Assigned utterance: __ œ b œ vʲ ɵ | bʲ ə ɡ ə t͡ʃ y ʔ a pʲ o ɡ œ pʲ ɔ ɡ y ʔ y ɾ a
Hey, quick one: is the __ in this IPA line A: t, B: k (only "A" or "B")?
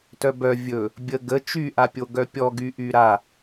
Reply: A